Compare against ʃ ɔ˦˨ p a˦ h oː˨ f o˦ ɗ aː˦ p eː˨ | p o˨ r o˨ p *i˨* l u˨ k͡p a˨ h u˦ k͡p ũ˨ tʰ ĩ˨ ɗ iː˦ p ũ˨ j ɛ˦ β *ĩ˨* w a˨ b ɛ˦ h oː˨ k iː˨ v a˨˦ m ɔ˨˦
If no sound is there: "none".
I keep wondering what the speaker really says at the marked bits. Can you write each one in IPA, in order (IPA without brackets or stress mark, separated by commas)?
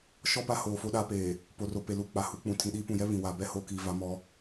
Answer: e˨, ĩ˨